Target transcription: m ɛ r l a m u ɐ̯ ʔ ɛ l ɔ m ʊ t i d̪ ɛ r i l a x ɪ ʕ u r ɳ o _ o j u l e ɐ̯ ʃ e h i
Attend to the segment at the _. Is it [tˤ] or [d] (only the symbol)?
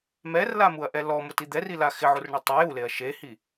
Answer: tˤ